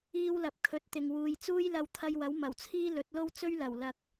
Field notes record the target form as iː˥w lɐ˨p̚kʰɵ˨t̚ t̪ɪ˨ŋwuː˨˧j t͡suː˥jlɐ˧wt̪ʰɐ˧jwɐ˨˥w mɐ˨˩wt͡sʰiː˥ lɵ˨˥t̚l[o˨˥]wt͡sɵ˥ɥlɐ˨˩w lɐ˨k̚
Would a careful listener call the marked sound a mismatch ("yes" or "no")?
yes